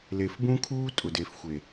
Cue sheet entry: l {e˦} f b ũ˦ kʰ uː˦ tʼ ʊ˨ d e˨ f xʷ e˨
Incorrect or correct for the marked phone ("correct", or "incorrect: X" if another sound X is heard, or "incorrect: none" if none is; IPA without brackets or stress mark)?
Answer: incorrect: e˨